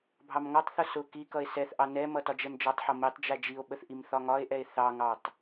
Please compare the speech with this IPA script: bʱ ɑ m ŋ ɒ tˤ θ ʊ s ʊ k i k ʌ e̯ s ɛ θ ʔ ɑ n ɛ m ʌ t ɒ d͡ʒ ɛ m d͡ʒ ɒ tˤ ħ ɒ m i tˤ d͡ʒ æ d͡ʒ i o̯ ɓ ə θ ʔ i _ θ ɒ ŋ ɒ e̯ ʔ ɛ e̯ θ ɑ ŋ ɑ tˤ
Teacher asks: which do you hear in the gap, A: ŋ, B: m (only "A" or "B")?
B